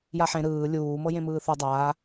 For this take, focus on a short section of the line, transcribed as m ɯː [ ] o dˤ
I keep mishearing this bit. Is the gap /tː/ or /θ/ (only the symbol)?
θ